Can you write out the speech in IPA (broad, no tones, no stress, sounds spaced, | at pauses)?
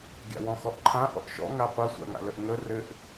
ɡʲ a̰ w ɔ̃ x ɔ ʔ ǃʰ ã ʔ ɔ̰ ʔ ʃ ɔ̰ ŋ a qʷ ɐ sʷ a̰ ŋ a̰ l ə ʔ ŋ ə r ɘ ʔ